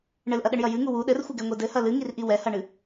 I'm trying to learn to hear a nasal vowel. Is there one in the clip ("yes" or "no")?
no